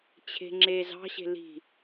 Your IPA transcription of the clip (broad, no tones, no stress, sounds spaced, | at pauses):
t͡ɕʰ e̤ ŋ͡ǁ e z ɑ̤ ɕ e̤ l i̤